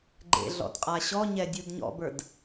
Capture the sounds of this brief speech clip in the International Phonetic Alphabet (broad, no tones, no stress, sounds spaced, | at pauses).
ɡ͡ǃ ḛ ɮ ɔ̰ d qʼ a ɕ ɔ ɲ ɛ dʲ u d ɲ ɔ̰ b ə˞ d